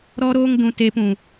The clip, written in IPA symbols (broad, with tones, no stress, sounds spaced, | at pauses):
ɾ ɔ˦ ɾ oː˦ ŋ d ũ˧ t eː˧ p ũ˨